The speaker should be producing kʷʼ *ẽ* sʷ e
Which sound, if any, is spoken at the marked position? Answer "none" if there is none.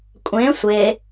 ẽ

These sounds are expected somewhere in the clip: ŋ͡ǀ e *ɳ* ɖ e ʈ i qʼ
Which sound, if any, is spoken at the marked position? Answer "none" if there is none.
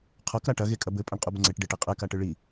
ʈ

